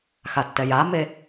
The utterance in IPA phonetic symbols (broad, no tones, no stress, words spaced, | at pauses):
xatːɛjame